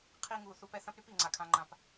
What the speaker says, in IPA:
qʰ i˧ ŋ u˨ θ u˦ p ɛ˦ θ ɐ̃˦ p ɾ y˦ p i˨ ŋ͡ǀ a˨ kʰ ã˧ ŋ͡ǃ ã˧ p

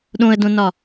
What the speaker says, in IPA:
ɗ õ ə̯ d õ n ɒ

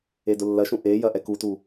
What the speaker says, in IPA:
e d ʊ lː ɐ ʃ ũ ʔ e j ɐ ʔ ɛ k u t u

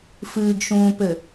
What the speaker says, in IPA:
f ɨː ɡ ʃ ũː p ɘ

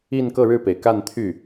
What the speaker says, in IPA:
i˥˧ n k ɤ˥˧ ɻ ɻ̩˥˩ p e˩ ɪ̯ k a˥˧ n t̪ʰ y˥˩

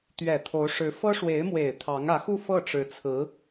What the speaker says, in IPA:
t̪ ɥ ɛ˨˩ t̪ʰ o˧˥ ʊ̯ ʂ ɻ̩˧˥ f ɤ˥ ʂ w e˧˥ ɪ̯ m w e˨˩ ɪ̯ t̪ʰ ɑ˧˥ ŋ ä˧˥ x u˥˧ f ɤ˥˩ ʈ͡ʂ ɻ̩˧˥ t͡sʰ ɹ̩˧˥

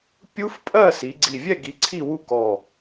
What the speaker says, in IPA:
pʲ u˦˥ f pʼ ɜ˥˨ s i˨˦ ɡ͡ǀ i˧˩ vʲ ɛ˥˨ ɡ i˨˦ ǀʰ i˥˨ w u˥˨ k ɔ˧˩

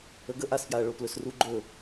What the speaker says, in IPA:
ə ɡ ə ʔ a s f j a ɐ̯ ɭ o p l ɵ s r u ɡ͡ǃ ɵ

